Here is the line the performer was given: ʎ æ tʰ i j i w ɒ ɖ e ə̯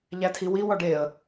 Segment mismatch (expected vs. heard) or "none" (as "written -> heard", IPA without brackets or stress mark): j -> w